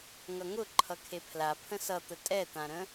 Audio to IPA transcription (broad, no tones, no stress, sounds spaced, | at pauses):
ŋ ʌ ŋ ʊ ǃʰ ʌ kʰ e pʰ l a pʰ ə̃ s ʌ t̪ ə tʼ ɛ t̪ ã ɾ ə̃